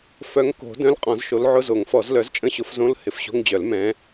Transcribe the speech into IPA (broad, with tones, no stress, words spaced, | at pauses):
fœ˨˦ŋko̤˨˩˦ dœ̃˧˥˧lqʼɔ̃˨˩˦zʃo˨˦l ʕʊ˧˥˧zo˨˩˦ŋfɔ˨˩˦z lœ˨˦zt͡ʃʼə̃˧˥˧ɕʊ˨˦f zõ˧˥˧lhɪ˨˦fɕo̤˧˥˧ŋd͡ʑœ˨˩˦l mɛ̃˨˦